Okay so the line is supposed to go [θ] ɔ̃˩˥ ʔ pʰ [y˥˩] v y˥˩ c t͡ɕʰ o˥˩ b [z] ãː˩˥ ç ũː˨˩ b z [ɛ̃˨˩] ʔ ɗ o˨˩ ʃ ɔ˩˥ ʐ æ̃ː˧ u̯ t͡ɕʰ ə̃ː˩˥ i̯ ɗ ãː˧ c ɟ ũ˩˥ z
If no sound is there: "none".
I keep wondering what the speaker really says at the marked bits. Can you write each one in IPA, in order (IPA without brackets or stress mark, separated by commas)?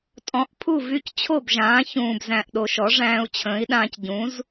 tʼ, u˥˩, ʒ, æ̃˨˩